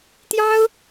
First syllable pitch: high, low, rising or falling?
high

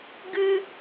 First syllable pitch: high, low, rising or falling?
high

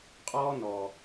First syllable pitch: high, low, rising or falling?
high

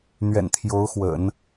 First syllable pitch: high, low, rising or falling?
low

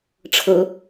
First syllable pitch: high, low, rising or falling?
rising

